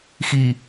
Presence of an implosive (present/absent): absent